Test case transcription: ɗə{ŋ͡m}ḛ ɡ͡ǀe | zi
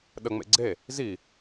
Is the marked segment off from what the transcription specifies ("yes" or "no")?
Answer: no